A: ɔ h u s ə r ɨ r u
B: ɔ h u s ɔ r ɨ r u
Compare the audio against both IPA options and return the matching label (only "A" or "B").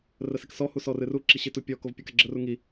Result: B